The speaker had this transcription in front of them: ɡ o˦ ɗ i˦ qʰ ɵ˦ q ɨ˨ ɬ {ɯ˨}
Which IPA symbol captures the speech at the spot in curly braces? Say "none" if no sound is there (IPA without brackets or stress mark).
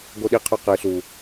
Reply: u˨